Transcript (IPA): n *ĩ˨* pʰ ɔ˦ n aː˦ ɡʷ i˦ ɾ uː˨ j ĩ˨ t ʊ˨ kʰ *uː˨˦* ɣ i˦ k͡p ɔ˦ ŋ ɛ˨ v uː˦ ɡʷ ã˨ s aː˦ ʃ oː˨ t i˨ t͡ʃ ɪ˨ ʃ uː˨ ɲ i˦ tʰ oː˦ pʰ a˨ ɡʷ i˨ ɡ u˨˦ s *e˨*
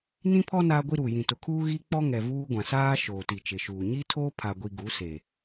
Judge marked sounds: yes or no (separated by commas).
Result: no, no, yes